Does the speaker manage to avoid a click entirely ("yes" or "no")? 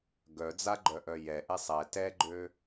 no